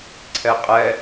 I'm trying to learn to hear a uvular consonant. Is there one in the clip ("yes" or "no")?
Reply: yes